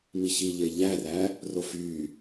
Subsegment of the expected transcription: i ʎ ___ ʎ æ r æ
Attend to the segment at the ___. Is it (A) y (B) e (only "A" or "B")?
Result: B